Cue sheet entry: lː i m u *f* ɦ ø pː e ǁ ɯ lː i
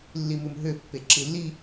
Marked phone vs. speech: incorrect: m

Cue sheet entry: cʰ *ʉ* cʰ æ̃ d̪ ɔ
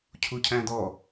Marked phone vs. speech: incorrect: u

